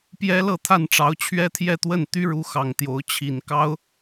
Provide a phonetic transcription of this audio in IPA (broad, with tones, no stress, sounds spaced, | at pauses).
p j ɛ˥ l ɤ˥˧ t̪ʰ a˥˩ n ʈ͡ʂ ɑ˧˥ ʊ̯ t͡ɕʰ ɥ ɛ˥ t̪ʰ j ɛ˥˧ t̪ w ə˥˩ n t̪ y˥ ɻ u˧˥ x ɑ˨˩ ŋ t̪ j o˧˥ ʊ̯ t͡ɕʰ i˨˩ n k ɑ˥ ʊ̯